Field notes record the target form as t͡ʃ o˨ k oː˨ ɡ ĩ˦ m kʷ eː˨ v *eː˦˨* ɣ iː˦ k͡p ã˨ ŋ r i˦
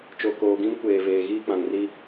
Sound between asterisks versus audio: incorrect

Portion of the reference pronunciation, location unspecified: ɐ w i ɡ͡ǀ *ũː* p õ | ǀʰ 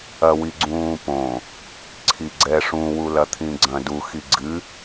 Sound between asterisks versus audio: correct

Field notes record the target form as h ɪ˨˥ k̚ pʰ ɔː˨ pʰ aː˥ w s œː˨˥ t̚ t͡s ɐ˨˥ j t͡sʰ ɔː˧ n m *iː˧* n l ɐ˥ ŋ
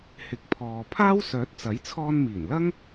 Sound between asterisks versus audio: incorrect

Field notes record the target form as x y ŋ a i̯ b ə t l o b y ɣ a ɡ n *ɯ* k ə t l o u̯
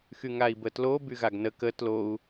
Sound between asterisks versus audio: incorrect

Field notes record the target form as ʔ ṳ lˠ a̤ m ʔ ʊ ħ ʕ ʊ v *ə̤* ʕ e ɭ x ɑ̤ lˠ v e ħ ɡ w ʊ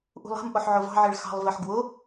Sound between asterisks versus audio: incorrect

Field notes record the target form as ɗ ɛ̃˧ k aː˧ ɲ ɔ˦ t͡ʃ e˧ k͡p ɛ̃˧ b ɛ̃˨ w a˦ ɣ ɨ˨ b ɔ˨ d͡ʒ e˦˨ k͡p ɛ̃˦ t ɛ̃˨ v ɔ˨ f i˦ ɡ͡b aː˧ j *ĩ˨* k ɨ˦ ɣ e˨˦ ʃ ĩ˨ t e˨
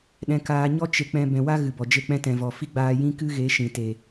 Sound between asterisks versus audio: incorrect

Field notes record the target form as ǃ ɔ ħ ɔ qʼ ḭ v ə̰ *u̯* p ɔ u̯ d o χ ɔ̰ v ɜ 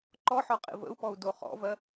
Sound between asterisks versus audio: correct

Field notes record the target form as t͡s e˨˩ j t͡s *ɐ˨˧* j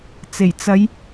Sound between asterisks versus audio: correct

